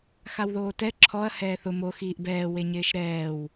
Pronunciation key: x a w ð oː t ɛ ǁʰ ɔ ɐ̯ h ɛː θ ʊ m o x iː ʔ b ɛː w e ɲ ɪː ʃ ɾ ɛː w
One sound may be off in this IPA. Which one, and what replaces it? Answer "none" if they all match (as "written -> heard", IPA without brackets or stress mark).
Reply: none